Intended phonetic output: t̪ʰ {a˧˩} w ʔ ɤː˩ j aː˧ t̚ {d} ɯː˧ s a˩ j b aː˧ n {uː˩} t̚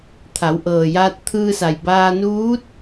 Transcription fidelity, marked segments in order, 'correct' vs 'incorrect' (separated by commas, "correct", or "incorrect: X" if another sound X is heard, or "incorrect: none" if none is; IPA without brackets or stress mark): incorrect: a˩˧, incorrect: t̪ʰ, incorrect: uː˧˥